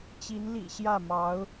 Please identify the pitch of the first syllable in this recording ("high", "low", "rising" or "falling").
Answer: rising